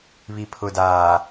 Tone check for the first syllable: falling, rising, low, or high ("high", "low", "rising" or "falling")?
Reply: low